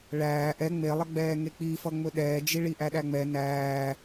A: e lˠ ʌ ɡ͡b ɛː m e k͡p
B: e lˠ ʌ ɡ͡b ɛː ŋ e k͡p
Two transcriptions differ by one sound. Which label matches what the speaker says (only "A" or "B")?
B